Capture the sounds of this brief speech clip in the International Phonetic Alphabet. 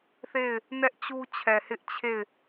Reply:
θ e˦˨ ɪ̯ | n ɛ˦ ʔ t͡ɕ u˦ t͡ɕʰ ɛ˨ h ɪ˦ ʔ t͡ɕʰ e˦˨ ɪ̯

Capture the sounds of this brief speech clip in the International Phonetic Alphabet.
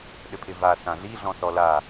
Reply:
ɗ ɘ pʰ ɪ v a s ã ɮ i ɮ ɔ̃ s ɔ l a

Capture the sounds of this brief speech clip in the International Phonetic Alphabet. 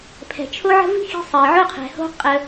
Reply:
pʰ ɛ̤˨ t͡ʃʰ o˦ ʕ ə̤˦ v i̤˦ x i̤˧ sˤ ɜ˨ ʕ o˦ qʰ ɛ̤˨ h o̤˦ qʼ ə˧

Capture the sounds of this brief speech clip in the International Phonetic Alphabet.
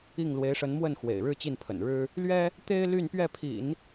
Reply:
i˥˩ ŋ l w e˧˥ ɪ̯ ʂ ə˧˥ n m w ə˥˩ n x w ḛ˨˩ ɪ̯ ɻ ɻ̩˥˧ t͡ɕ i˥˩ n pʰ ə̰˨˩ n ɻ ɻ̩˥ | l ɥ ɛ˥ | t̪ e˥ ɪ̯ l y˥˧ n p ɥ ɛ˥˩ pʰ ḭ˨˩˦ n

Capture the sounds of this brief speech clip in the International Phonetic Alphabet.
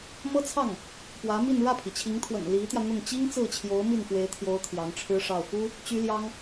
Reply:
m ɤ˥ t͡sʰ ɑ˥˩ ŋ | p w ä˧˥ m i˥˧ n ɻ ä˥˩ pʰ i˩ t͡ɕʰ i˧˥ ŋ t̪ʰ w ə̰˨˩ n l i˧˥ t̪ j ä˧ n̪ ʊ˥˩ ŋ t͡ɕ i˥ ŋ t͡s ɹ̩˥˩ t͡ɕʰ j o˧˥ ʊ̯ m i˥˩ n f w e˧˥ ɪ̯ t̪ʰ j o˧˥ ʊ̯ t̪ʰ j ɑ˧˥ ŋ ʈ͡ʂʰ ɻ̩˥ ʂ ɑ˥˩ ʊ̯ f u˥ | t͡ɕ y˥ l j ɑ˥ ŋ

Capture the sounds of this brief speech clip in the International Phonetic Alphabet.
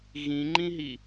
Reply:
ɣ ĩ ŋ͡ǃ ĩ ɦ i

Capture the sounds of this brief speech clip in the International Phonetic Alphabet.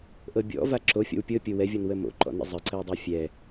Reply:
ʔ ɤ bʲ ɔ̰ v a ǁ o fʲ ɔ̰ w pʲ ɤ pʲ o w ɛ vʲ ɔ n w ə m o̰ ǃ ɔ̰ n ə̰ zˤ ə ǀ ə w dˤ ɤ fʲ ɛ

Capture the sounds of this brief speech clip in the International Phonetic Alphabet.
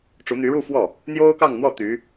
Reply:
ʈ͡ʂ u˧˥ n̪ y˧˥ ɻ u˥˧ f w ɔ˥˩ | n̪ j o˥ ʊ̯ k ɑ˥˧ ŋ n̪ w ɔ˥˩ t̪ y˧˥

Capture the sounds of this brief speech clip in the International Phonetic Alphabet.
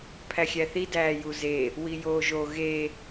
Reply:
pʰ æ xʲ æ θ i d æː j u z e | w i j oː ʒ o ɣ e

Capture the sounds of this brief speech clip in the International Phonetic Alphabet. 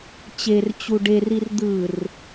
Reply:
t͡ɕ e r t͡ɕ u ɖ e r i r d̪ ɯ r

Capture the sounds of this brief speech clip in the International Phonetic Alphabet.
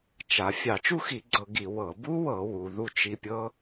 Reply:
t͡ʃ a˩˧ fʲ ɑ˧˩˧ t͡ʃ u˥˧ x i˧˩˧ ɡ͡ǀ ɤ˧˩˧ ɡ i˧˩˧ w ɤ˧˩˧ b u˦˥ w ɤ˧˩˧ w u˩˧ ð u˥˧ t͡ʃ i˦˥ pʲ ɤ˦˥

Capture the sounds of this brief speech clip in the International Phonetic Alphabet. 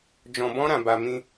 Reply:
d͡ʒ ɔ̃˧ b ɔ̃˦ ɾ ã˧ b a˧ m ĩ˧

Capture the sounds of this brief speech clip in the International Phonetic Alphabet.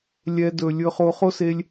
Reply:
lʲ ɛ˧ d ɵ˨ lʲ ɵ˧ χ o˧ χ o˦ s e˧ lʲ

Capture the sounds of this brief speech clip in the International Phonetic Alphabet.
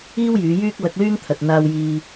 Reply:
iː˥ w j yː˨˧ j yː˥ k̚ l ɐ˧ k̚ l yː˥ ŋ t̪ʰ ɐ˨ t̚ n̪ aː˧ w j iː˧

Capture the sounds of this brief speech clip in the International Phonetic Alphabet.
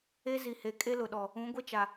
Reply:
e˦ z i˨ h e˨ kʼ e˦ l ʊ˨ ɗ ɔ˨ | ũ˨˦ ɡʷ e˦ t͡ʃ a˨

